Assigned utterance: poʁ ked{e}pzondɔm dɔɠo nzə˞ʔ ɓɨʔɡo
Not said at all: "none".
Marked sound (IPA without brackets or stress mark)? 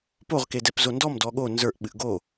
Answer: ɛ